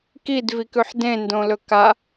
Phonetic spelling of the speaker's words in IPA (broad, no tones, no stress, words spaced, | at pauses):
kid vikʉħdẽ ndõlɵka